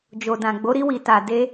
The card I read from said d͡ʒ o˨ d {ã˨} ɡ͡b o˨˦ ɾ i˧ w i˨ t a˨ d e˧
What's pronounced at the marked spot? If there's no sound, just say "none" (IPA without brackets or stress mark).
ã˨